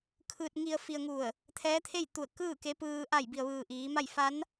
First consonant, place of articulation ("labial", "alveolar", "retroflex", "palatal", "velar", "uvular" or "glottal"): velar